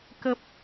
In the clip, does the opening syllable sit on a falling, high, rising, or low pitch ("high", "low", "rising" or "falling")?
low